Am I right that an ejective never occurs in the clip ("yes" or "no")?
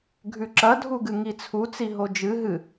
yes